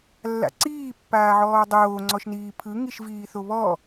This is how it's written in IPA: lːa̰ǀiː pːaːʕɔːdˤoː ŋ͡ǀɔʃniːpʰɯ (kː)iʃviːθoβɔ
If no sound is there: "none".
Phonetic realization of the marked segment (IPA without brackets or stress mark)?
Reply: ŋ